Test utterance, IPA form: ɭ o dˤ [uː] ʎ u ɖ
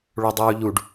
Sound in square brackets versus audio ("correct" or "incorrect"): correct